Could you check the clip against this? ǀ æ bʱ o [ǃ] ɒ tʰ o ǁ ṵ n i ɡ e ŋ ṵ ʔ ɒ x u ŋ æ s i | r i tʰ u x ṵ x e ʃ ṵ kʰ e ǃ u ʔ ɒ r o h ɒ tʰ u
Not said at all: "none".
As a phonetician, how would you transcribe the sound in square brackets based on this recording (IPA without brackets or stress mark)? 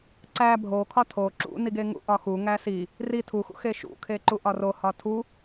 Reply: kʰ